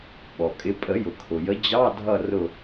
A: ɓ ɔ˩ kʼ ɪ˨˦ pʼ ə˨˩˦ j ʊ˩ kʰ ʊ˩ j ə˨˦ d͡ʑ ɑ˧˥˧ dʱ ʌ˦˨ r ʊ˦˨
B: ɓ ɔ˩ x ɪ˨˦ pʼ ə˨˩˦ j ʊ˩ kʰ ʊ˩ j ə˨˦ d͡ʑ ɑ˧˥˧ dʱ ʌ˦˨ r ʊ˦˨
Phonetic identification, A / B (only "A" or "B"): A